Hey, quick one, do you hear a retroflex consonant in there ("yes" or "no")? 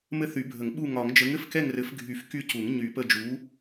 no